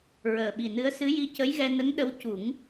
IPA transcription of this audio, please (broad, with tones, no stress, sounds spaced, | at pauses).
ɹ əː˨˩ ɓ i˨˩ n ɨ˧˥ ə̯ s ɨ˧˥ j i˧ c ə˧˥ j ɣ ɛ˧ n ə˧˥ ŋ ɗ ə˧˥ w c u˨˩˦ ŋ